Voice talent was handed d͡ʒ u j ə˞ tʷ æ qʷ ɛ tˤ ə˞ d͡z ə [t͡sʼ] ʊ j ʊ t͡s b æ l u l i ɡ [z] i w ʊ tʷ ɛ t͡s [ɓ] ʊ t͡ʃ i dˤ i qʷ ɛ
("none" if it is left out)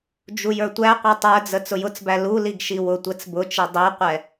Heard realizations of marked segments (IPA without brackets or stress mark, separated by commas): t͡s, ʃ, b